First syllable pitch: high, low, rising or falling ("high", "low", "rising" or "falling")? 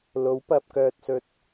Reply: rising